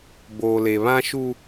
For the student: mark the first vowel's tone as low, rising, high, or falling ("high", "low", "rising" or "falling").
low